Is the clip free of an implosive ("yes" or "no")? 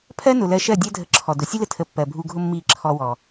yes